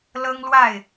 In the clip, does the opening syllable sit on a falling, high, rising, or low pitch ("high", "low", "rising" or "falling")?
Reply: high